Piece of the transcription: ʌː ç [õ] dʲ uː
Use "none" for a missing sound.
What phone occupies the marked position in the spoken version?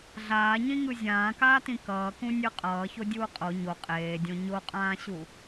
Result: o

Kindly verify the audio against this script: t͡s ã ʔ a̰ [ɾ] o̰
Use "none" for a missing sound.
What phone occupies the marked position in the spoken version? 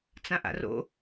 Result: r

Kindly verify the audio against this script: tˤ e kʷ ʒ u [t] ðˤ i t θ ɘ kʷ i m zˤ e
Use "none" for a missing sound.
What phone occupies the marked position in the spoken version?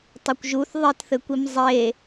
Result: θ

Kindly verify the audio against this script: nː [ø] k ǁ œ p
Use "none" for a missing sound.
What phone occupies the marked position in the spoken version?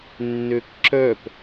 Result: ø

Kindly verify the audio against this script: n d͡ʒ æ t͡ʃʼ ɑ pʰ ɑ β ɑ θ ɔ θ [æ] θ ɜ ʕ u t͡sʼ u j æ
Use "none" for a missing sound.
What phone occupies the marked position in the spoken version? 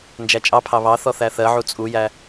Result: æ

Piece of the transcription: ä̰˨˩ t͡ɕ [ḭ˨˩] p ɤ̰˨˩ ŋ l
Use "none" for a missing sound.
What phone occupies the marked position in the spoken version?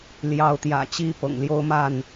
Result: i˥˨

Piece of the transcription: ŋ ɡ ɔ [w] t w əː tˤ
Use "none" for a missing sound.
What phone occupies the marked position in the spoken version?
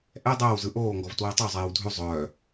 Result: v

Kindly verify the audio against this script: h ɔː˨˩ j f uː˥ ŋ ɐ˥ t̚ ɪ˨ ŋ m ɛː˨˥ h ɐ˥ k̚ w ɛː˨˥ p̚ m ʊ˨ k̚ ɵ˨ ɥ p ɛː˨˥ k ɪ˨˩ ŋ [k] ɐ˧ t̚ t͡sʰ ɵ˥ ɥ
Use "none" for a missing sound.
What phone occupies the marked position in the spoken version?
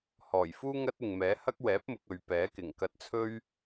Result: k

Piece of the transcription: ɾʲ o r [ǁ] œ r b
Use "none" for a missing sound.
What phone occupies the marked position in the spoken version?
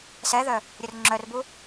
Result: ŋ͡ǁ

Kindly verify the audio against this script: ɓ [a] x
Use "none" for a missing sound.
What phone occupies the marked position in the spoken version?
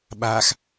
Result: a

